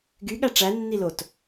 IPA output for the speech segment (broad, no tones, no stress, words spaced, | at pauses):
ɡyɠæ ʈ͡ʂænːi lot